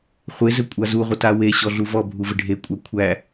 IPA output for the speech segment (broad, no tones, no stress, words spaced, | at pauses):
χʷe zɘkʷʼazuʁʷə taweɕɔ ɮuvɔbʱu vɘɖʱekʷʼæ kʷʰæ